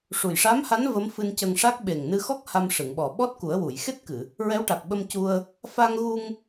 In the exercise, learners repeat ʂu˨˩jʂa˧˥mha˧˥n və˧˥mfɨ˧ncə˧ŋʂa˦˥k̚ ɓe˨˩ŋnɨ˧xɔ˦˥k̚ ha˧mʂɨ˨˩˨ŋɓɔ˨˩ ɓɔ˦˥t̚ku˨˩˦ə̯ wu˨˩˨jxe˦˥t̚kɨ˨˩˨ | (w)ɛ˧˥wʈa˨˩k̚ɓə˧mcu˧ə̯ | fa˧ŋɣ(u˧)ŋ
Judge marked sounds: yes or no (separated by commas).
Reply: no, yes